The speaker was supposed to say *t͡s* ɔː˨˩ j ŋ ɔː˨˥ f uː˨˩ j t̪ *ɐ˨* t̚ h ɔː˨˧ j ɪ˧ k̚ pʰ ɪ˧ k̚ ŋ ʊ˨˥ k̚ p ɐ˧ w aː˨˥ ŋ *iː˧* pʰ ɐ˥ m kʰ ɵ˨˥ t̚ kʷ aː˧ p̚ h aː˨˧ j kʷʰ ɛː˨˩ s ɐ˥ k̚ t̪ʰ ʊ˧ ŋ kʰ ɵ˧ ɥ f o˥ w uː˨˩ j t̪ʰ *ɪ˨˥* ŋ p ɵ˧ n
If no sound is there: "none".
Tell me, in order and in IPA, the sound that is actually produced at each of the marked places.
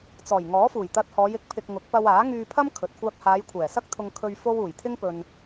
t͡s, ɐ˧, yː˧, ɪ˥

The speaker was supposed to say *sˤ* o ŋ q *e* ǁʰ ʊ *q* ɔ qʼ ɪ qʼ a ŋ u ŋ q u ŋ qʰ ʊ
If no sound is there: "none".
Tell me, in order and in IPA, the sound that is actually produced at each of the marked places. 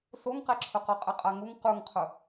s, e, q

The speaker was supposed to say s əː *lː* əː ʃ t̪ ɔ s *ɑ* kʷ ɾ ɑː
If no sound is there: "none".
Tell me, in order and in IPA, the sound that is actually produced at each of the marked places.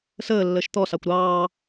lː, ɑ

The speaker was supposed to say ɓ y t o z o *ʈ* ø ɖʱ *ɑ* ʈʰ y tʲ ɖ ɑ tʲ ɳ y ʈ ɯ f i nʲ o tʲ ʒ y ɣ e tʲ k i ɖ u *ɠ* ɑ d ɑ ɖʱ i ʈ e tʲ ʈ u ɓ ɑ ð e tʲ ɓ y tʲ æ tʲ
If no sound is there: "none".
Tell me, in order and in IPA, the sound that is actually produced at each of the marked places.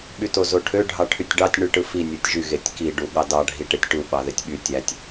ʈʰ, ɑ, ɠ

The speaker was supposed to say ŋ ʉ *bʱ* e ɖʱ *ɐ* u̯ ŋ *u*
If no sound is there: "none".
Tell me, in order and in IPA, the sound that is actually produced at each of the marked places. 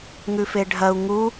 f, ɐ, u

